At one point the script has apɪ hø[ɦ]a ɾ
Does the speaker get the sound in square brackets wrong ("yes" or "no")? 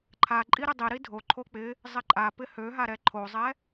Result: no